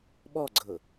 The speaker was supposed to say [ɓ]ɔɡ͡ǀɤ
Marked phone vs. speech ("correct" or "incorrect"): correct